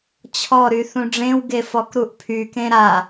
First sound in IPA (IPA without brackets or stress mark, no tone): t͡ɕʰ